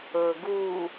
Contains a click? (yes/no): no